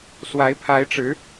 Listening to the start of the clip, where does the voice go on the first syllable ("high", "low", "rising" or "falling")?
rising